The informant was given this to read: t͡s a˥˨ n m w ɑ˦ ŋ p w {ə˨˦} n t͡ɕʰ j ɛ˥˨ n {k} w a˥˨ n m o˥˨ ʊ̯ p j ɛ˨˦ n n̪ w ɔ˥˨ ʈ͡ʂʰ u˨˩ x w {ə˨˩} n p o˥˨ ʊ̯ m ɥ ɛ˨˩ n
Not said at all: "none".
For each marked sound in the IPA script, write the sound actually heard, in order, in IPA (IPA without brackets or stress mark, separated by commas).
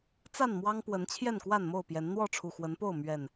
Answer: ə˨˦, k, ə˨˦